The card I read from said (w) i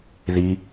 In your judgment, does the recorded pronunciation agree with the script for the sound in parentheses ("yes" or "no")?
no